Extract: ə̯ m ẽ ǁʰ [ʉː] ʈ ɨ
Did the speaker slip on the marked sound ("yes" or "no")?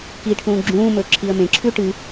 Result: no